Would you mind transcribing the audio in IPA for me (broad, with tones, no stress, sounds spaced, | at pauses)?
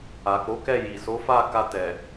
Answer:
a˨ k͡p o˨˦ k ɛ˦˨ j i˨ s o˨˦ f a˦˨ k a˧ t ɛ˨